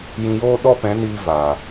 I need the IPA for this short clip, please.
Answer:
j ĩ˨ j oː˧ ɗ ɔ˦ p ɛ̃˨˦ n iː˧ v aː˨

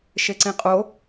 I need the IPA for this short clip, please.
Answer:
ʃ e ǀ ĩ qʼ o

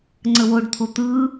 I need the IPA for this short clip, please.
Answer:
ŋ͡ǀ ə w o ɖ t̪ʰ o t̪ ɯ

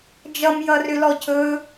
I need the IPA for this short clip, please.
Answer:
d͡ʒ ʌ m j ʌ r ʏ l ɔ cʰ ɵ

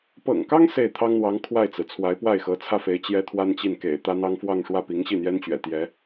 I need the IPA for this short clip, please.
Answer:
p ɤ̰˨˩ ŋ k ɑ˥ ŋ s e˥˩ ɪ̯ t̪ʰ ɑ˥ ŋ n̪ w ɑ˧˥ ŋ kʰ w a˥˩ ɪ̯ t͡s ɹ̩˩ t͡sʰ w a˧˥ ɪ̯ p w a˥˩ ɪ̯ x ɤ˧˥ t͡sʰ ä˥˩ f e˧˥ ɪ̯ t͡ɕ j ɛ˥ t̪ʰ w a˥ n t͡ɕ i˥˩ n k ḛ˨˩ ɪ̯ t̪ ä˥ n̪ ɑ˥ ŋ f w ɑ˥˧ ŋ ʂ w ä˥˩ p i˧˥ ŋ ɕ i˥˩ n̪ j ɛ˥ n t͡ɕ ɥ ɛ̰˨˩ t̪ j ɛ˧˥

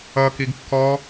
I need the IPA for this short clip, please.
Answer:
ʌ k i ɡ kː ɔ

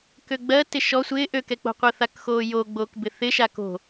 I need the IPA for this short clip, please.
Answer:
k ø ɡ͡b ɜ t ɪ ʃ ɔ sʷ ɪː ʔ ø k ɛ k͡p o̤ qʷ ɜ θ a k x oː j o ɡ͡b oː k b ɪ θ ɪ ʃ a k o̤

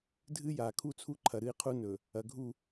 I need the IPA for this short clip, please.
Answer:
dʱ ɨ˦ j a˨ kʰ u˦ t͡sʰ u˦ ǃʰ ɐ˨ ɾ ɨ˦ i̯ qʰ u˦ n ɵ˨ | ɐ˨ ɡʱ u˦˨

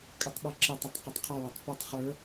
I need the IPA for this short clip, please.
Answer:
kʼ ə tˤ ɓ ʌ ǁ ɪ tˤ ə tˤ q ʊ tˤ qʰ ʌ w ə tˤ p u tˤ χ ə˞

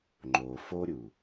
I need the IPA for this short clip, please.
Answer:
ŋ͡ǃ o f o ɾʲ u

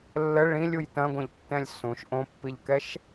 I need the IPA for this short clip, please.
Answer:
lː ə ɭ ĩ lʲ u j t ɐ̃ ɡʷ ɐ̃ ʎ tː ɛ̃ lʲ s ũ ʃ ʔ õ pː i ʎ k ɛ ʃ

